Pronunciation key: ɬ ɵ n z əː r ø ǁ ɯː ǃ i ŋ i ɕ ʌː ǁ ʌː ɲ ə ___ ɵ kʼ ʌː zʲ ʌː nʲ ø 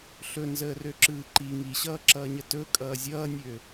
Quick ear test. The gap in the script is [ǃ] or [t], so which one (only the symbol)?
t